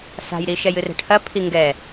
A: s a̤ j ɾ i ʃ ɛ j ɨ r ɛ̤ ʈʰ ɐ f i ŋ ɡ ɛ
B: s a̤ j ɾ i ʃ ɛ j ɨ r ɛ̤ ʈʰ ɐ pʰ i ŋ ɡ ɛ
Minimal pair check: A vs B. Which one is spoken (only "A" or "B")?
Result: B